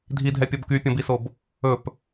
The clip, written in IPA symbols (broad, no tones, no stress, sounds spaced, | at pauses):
dʱ i dʱ ɛ pʲ ɔ b k y pʲ ɔ̃ b i s o b | ɵ p